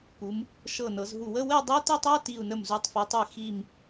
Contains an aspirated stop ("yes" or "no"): no